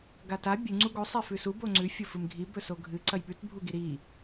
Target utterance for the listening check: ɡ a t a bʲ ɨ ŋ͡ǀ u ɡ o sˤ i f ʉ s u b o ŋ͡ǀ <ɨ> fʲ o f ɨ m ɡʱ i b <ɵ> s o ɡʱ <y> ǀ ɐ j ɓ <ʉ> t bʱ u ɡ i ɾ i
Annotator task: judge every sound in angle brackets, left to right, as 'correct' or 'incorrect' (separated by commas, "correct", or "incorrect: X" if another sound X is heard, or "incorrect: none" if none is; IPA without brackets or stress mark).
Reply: incorrect: ʉ, correct, incorrect: ɨ, correct